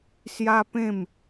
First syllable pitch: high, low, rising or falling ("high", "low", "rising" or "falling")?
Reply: high